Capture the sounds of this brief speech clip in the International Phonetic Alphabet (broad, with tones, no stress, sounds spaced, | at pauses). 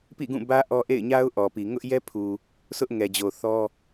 p ḭ˦˨ ɡ ũ˦˨ b ä˦ ʔ ɔ˦ ʔ ḛ˦˨ ɪ̯ ɲ a˦ ʊ̯ ʔ ɔ˨ p i˨ ŋ ʊ˦ ʔ j ɛ˦ pʰ u˨ | sʰ ʊ˦ ʔ ŋ ɛ˨ d͡ʑ o˨ θ ɔ˦